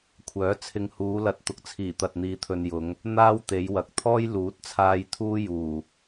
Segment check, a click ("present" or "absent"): absent